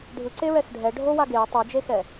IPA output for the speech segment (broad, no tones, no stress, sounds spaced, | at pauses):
ɖʱ ɯ ǀ e ɹ ɛ x ɖʱ ɛ ɖʱ o w a ɡ e u̯ tˤ ɯ d͡ʒ e x ɛ